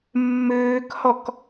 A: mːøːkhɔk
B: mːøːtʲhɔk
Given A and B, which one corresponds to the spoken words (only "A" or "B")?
A